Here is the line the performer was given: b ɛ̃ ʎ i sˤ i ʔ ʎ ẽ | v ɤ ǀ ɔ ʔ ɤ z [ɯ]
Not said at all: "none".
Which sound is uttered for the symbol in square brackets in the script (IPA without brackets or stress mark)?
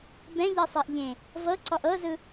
ɯ